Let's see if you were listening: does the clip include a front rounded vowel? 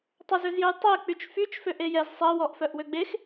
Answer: yes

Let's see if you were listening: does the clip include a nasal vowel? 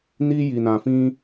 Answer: yes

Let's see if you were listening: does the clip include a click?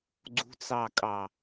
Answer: yes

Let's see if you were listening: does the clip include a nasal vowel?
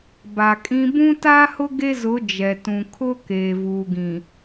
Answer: yes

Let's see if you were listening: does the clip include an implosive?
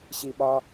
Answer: yes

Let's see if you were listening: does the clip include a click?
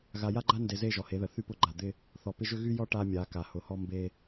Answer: yes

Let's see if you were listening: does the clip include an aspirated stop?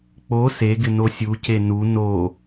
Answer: no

